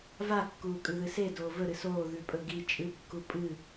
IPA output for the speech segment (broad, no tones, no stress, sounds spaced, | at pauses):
v a kː uː kʼ ʉ ð ɨ s e d oː v ɵ ɾ ɨ s oː ð ʉ pʼ ɵ ɡ i t͡ʃʼ ɨ kː u pʼ ɨ